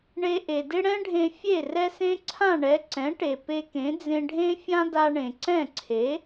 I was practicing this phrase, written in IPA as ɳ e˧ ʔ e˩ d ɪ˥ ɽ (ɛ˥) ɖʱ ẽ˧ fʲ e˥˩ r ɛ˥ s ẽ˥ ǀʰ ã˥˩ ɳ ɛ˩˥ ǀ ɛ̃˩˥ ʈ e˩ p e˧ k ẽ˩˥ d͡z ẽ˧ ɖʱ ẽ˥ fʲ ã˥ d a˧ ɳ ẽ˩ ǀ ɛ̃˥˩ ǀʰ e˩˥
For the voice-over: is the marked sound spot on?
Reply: no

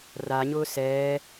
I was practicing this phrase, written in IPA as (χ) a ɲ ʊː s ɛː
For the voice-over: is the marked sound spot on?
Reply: no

